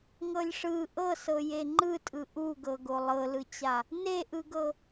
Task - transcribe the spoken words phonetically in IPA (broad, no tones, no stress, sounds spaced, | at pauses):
ŋ ɤ lʲ ʂ ɯ ʔ ɤ s ɤ j e ŋ͡ǃ ɯ tʼ ɯ ʔ u ɡ ɤ ɡ o lˠ ɤ l ɯ t͡ɕ a | n e ʔ ɯ ɡ ɤ